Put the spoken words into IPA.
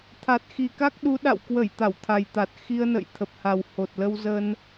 t̪ʰ a˨˩ t̚ x i˨˩ k a˦˥ k̚ ɗ u˨˦ ɗ a̰˧˨ w k w ə˧˩ j t̪ a˧˩ w t̪ʰ a˨˩ j t̪ a˨˩ t̚ x i˧ ə̯ n ə̰˧˨ j t̪ʰ ə˨˩ p̚ h a˨˩ w h o˨˩ t̚ l ə˧ w z ə˧ n

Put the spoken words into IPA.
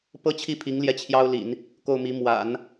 p ɤ˥ t͡ɕʰ i˥˩ pʰ i˧˥ ŋ l j ɛ˥˩ t͡ɕʰ j ɑ˥ ʊ̯ l ḭ˨˩˦ n | k o˥˩ ʊ̯ m i˧˥ m w a̰˨˩˦ n

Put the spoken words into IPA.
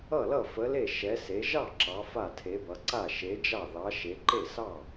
ʌ˥˩ l ʌ˥˩ f ə˨˥ l e˥˩ ʃ ɛ˨˥ s e˨˥ ʒ ɑ˥˩ ǁ ɑ˨˥ f a˥˩ tʰ e˨˥ b ʌ˨˥ ǀ a˥˩ ʃ e˨˥ d͡ʒ ɑ˥˩ ð ɑ˨˥ ʃ e˨˥ ǃ e˥˩ s ɑ˥˩

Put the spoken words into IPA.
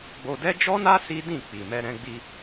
ɡ͡b o˧ d ɛ˦ d͡ʒ ɔ˦ n a˦ s i˦ d ĩ˦˨ k͡p i˨ m ɛ˧ ɾ ɛ̃˧ ɡ͡b i˧

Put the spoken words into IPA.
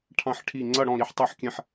ʈʰ ɑ̃˥˧ ħ ʈʰ i˥˧ ŋ͡ǀ ʌ˥˧ ɽ ɔ̃˥˧ ɾ i˥˩ ħ tˤ i˥˧ ħ kʲ ɛ̃˥˧ ħ

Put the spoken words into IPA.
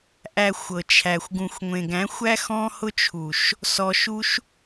ʔ æ˧ xʷ ɤ˨ t͡ʃʰ æ˨ xʷ ɡ ũ˧ xʷ ŋʷ ẽ˨ ɡ æ̃˨˦ xʷ æ˦ x ɔ̃˦ h ʊ˦ t͡ʃʰ u˨ ʃ | s ɔ˧ ʃ u˦ ʃ

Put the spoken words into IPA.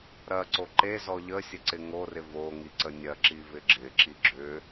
ɾ ɐ ǀ o ǃ e z ɔ ʎ ə sʲ ə ǀ ɪ ŋ o r ɪ v o ŋ i ǀ ə nʲ ɐ ǁ i v ɪ ɡ͡ǁ ɪ ǁ i ɡ͡ǁ ʏ

